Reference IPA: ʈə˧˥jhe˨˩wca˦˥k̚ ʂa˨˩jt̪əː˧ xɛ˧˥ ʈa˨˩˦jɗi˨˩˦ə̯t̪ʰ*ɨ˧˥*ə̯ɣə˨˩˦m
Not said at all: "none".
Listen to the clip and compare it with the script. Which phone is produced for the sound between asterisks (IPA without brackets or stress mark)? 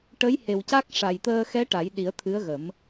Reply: ɨ˧˥